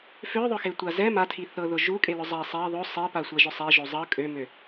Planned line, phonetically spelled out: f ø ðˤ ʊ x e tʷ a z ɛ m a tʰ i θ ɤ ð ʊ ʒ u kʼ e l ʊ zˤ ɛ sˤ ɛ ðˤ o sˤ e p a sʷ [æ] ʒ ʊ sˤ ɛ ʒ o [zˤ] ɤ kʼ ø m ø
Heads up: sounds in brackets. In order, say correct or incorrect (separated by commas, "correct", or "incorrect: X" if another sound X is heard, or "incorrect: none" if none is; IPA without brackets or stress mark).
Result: correct, correct